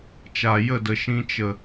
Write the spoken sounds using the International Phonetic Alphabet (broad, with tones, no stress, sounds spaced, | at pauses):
t͡ʃ a˨ j ə˦˨ d ə˨ ʃ ĩ˧ t͡ʃ ə˨